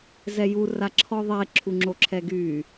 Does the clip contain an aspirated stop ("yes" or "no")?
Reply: yes